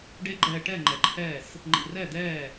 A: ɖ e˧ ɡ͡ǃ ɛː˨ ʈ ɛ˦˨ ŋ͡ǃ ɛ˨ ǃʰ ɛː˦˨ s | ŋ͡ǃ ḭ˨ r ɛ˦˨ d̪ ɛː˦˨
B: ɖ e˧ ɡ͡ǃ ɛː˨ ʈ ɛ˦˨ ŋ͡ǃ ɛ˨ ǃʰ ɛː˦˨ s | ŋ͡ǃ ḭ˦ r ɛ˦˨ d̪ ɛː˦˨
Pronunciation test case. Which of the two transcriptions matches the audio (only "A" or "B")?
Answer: A